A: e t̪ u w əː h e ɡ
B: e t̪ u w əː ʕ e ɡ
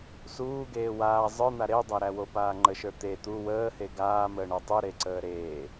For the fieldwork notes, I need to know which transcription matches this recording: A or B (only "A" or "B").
A